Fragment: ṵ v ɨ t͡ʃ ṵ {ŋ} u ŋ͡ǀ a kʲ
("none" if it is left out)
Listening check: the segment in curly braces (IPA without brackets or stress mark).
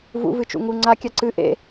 ŋ